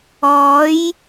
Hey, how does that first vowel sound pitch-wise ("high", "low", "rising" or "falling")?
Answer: rising